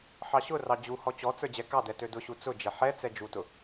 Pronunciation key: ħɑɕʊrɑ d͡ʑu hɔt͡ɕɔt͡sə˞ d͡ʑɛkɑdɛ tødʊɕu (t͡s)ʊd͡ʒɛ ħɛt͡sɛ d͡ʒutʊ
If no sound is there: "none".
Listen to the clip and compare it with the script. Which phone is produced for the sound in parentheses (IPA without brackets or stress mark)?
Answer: t͡s